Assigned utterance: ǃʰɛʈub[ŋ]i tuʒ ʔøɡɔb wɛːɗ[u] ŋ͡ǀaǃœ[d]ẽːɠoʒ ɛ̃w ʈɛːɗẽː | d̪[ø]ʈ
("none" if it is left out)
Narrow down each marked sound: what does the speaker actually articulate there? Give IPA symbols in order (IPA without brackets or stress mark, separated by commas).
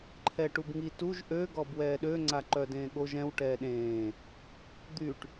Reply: ŋ, ø, d, y